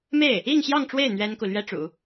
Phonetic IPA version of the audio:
m e˥˩ ɪ̯ | i˥˧ ŋ ɕ j ɑ˥˧ ŋ ʈ͡ʂ w e˥˩ ɪ̯ n̪ ɥ ɛ˥ n k u˨ l ɥ ɛ˥ ʈ͡ʂ ṵ˨˩˦

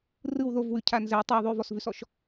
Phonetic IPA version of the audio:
r ɯ w ð o v w ʉ cʰ a n z ɛ tˤ a ðˤ ʉ v ɔ s v ʉ s ɔ ʃ

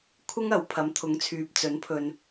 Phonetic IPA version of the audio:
kʷʰ ɪ˥ ŋ ɐ˨˥ w pʰ ɐ˨˥ m t̪ʰ ʊ˨˥ ŋ t͡sʰ yː˨ p̚ t͡s ɵ˨˥ n pʰ ɵ˨ n

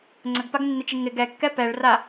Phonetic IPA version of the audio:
ŋ͡ǀ ə ɡ p a ɡ nː ɪ t͡ʃ i ŋ ɪ ɡ ɛ kː ɛ p ɛ ɭ r a

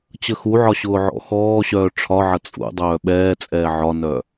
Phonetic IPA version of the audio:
t͡ɕ ə x u ʕ ɒ ɕ ʊː ʕ ɔ̰ x ɔː ɕ œː ʈ͡ʂʰ ɒ ʕ ɐ t͡sʼ ṵ dˤ œː ɓ ɛː t͡sʼ ɛː ʕ ɒ n œ

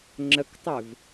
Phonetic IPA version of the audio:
ŋ͡ǁ ə k tˤ ʏ v

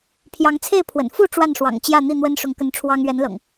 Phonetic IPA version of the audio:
pʰ j ɑ˨˦ ŋ t͡sʰ e˥˨ ɪ̯ pʰ w ə̰˨˩ n f u˥˨ ʈ͡ʂ w a˥˨ n ʂ w ɑ̰˨˩ ŋ t͡ɕ j ä˥˨ n̪ i˥˨ n̪ w ə˦ n ʂ ʊ˨˦ ŋ k ə˨˦ n ʈ͡ʂʰ w ɑ˦ ŋ ɥ ɛ˨˦ n l ɤ̰˨˩ ŋ

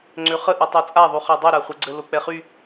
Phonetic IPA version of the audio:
ŋ͡ǀ ø χ ə ʔ i tˤ o t͡sʼ a ðˤ u χ a dˤ i ɾ a χʷ ɛ ɡ͡ǀ ə l o k͡p ɛ χ y

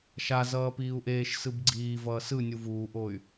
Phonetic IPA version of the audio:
ʃ a z ʌː p iː u̯ ʔ eː ʃ s ɯ b ɡ͡ǀ iː v ʌː s ɯ nʲ u v uː ʔ o y̯

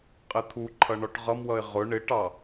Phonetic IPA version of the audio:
qʼ ɪ t̪ʰ u ǃʰ ʌ ɳ ɔ ʈ ʁ ʌ m w ʌ ɪ̯ ʁ ʊ ɳ ɪ ʈ ɑ

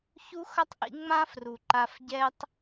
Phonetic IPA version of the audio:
ç u˦ x ʌ˦ tˤ ʔ ḭ˧ ŋ͡m ã˦ f r u˨ ǃ a˧ f ɟ ɛ˦ tˤ

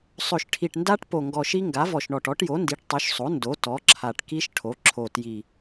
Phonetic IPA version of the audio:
sˤ ɵ˨˩ ʃ ʈʰ i˨˩ ʈ n d a˦˥ ʈ p o˨˩ ŋ ɡ ɔ˨˩ ʃ i˦˥ ŋ ɡ a˩˥ v ɔ˨˩ ʃ ɳ ɔ˨˩ ʈ ɔ˩˥ ʈ j o˩˥ n d i˩˥ ʈ tˤ o˩˥ ʃ sˤ o˩˥ n d o˩˥ t ɔ˩˥ ǁʰ a˨˩ ʈ k i˦˥ ʃ ʈʰ o˩˥ ǁʰ o˨˩ t j i˨˩

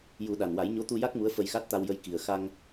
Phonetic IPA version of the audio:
j u˨˩˦ ɗ a˨˩ n w a˨˩˦ j ɲ o˧˥ t̪ u˧ j a˦˥ k̚ m u˧˥ ə̯ f ə˧ j x a˦˥ t̚ t̪ a˧ w j ə˧ j k i˨˩ ə̯ x a˧ ŋ

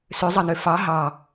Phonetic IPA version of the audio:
s ø zˤ ɑ n ø f ɑ ɦ ɑ

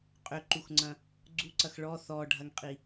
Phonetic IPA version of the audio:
qʼ ʏ ǃ u x ŋ͡ǀ ɐ̃ | ɡ͡ǀ u ǀ ɐ x ɭ ɔ θ ɔ ɖʱ ɐ ŋ qʼ i

